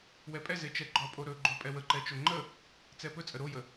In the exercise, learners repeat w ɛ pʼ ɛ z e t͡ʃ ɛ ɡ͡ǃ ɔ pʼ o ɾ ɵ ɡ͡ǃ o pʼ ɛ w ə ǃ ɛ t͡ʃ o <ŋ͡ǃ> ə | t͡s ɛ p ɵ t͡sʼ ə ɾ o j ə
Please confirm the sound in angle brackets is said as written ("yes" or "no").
yes